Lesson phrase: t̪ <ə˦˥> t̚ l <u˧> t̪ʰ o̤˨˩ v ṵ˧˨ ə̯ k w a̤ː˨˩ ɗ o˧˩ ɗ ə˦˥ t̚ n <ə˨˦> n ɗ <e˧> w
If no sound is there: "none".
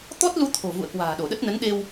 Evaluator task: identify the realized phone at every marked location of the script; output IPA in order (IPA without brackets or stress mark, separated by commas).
ɔ˦˥, u˧, ə˨˦, e˧